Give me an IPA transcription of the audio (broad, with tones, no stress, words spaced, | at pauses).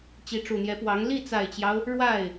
t͡ɕi˧˥ʈ͡ʂu˨˩n̪jɛ˧˥pwɑ˧˥ŋ li˥˩t͡sa˨˩ɪ̯t͡ɕjɑ˦ʊ̯ | ɻwa˥˩ɪ̯